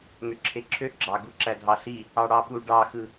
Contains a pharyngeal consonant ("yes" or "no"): no